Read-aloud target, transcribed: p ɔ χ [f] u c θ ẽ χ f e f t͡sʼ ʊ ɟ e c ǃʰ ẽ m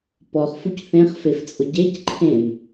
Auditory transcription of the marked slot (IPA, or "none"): f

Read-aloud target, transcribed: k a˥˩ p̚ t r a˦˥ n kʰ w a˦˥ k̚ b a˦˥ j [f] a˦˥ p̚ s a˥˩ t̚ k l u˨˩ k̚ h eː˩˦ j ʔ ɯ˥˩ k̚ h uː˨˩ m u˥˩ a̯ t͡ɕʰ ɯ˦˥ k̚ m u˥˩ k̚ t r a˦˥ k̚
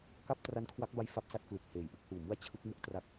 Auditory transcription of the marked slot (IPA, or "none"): f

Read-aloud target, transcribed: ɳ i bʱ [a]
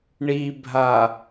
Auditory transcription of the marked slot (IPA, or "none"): a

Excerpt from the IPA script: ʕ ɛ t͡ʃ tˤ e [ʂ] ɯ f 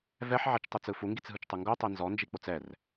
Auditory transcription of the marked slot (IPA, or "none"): t͡s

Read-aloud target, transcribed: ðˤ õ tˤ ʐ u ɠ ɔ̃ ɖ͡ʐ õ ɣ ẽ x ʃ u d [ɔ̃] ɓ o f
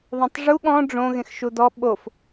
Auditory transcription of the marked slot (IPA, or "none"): ɔ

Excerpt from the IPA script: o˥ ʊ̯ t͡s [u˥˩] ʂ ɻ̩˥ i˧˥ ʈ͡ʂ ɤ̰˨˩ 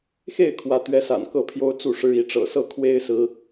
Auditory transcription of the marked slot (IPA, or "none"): u˥˩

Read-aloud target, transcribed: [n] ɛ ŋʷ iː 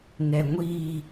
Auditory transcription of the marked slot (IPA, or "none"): n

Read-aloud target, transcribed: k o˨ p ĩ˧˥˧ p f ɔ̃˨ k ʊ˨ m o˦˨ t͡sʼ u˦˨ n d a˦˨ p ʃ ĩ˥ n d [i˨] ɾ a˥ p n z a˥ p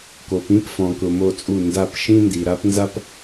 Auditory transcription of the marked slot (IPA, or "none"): i˨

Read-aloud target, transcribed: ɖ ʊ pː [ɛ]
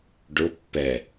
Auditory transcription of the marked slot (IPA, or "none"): ɛ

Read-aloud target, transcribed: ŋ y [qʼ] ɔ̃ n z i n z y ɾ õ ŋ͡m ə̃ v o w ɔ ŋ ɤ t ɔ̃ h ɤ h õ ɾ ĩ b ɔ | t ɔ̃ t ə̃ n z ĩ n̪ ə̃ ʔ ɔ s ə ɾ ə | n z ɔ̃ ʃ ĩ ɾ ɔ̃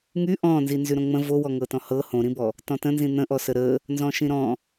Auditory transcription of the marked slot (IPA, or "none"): ʔ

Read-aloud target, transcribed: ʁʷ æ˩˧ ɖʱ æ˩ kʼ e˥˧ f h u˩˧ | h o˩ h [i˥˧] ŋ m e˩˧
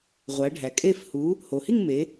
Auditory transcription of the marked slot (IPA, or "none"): i˥˧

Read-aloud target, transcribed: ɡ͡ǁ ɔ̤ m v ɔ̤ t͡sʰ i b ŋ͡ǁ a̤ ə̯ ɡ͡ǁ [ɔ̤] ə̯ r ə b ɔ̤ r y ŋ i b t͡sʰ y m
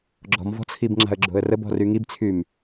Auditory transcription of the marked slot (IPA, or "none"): o̤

